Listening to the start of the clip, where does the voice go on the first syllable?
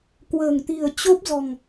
low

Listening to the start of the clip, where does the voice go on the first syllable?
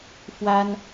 high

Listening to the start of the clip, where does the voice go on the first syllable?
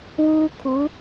high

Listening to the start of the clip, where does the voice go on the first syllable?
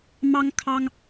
high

